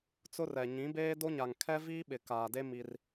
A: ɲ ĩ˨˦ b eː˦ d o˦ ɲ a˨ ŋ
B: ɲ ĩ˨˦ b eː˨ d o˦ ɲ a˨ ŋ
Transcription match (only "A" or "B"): A